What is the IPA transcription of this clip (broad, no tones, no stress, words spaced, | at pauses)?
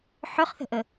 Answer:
ħøχθə̤ʔə